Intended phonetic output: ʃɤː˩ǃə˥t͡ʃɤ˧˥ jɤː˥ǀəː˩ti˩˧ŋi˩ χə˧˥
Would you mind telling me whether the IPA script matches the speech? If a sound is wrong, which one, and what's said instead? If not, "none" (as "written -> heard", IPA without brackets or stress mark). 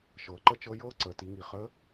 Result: none